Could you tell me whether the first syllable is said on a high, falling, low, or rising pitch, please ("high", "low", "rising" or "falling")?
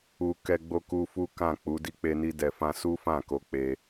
low